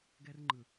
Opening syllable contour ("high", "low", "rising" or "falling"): high